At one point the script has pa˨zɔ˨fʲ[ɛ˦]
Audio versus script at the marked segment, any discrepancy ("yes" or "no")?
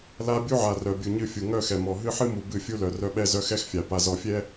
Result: no